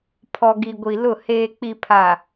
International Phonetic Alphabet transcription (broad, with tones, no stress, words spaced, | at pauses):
pʰɔ˨ɡi˨ɡʷi˨ lʊ˦˨ heː˨k͡pi˨pʰa˨